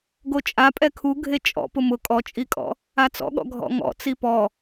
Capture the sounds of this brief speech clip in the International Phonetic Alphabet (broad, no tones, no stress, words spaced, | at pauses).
ɡot͡ʃʼa pʼɛkʰu ɡʱet͡ʃʼɔ̰ pʊmʊ kʼɔt͡ʃʼikʼɔ̰ | at͡sɔ̰ɠɔ̰ ɡʱɔ̰ŋɔ̰ t͡sipɔ